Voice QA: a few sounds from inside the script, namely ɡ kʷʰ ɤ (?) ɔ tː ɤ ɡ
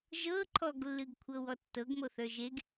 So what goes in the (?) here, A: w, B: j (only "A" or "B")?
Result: A